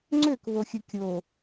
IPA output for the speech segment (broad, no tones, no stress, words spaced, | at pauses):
ŋ͡ǀøkβoxʲɯ kʲo